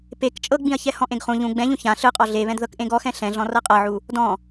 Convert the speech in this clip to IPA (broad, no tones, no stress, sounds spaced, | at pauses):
p e k t͡ʃʼ ɤ ɡ͡b ĩ ɐ̯ ç ɛ h ɔ̃ ʔ ẽ ɡ χ ũ ʎ ũ ɡ͡b ɛ̃ ʎ ũ ç ã ɬ ɯ qʼ ɔ ɮ e β ɛ̃ d ð ɤ k ʔ ẽ ɡ ɔ x ɛ̃ ɬ ɛ̃ ɮ ɔ̃ r ɤ qʼ ɤ ʕ u | d ɔ̃